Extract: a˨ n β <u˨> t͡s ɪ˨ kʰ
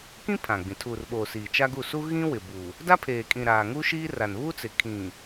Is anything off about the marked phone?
yes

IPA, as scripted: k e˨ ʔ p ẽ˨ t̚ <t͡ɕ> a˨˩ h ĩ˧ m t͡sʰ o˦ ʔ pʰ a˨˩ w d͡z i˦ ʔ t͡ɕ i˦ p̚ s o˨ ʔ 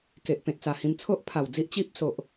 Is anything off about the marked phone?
yes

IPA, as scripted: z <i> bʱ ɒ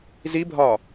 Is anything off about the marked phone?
no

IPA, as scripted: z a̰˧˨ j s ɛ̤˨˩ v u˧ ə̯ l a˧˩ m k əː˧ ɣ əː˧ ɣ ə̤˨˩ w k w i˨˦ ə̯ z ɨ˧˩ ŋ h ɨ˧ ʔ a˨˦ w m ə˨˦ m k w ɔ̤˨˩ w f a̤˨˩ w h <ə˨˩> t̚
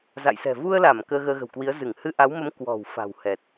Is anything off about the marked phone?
yes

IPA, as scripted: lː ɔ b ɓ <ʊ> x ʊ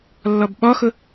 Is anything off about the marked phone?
yes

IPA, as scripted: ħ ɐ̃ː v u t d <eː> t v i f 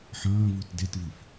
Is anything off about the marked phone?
yes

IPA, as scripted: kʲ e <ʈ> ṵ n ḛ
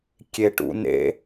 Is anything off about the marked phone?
no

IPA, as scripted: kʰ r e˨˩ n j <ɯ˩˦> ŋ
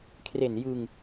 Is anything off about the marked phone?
yes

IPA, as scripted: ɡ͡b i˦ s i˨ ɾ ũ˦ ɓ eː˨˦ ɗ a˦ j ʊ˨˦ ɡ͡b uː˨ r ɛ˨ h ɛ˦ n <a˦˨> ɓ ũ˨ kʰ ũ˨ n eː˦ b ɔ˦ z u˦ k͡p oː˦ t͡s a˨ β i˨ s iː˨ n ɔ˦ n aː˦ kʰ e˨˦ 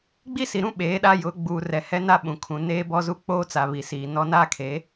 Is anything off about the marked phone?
yes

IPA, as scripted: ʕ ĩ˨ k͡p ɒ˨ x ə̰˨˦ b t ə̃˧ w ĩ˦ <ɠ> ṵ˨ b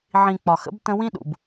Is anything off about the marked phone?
yes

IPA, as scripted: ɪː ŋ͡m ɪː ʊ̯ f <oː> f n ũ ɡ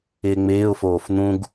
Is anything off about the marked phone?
no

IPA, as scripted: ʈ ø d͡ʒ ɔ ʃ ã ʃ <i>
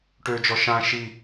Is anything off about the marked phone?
no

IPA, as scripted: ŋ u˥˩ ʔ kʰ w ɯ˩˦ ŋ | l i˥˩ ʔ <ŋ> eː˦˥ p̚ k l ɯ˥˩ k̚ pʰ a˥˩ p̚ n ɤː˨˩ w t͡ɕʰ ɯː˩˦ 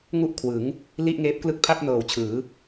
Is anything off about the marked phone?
no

